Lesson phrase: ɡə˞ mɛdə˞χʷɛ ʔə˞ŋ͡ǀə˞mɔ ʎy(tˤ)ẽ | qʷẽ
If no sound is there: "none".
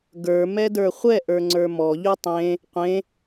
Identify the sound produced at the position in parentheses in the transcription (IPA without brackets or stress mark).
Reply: tˤ